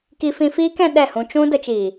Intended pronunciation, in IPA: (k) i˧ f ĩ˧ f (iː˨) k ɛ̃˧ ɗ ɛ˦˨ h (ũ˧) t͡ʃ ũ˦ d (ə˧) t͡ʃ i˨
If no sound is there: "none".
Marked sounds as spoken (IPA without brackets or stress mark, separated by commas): k, iː˦, ũ˧, ə˧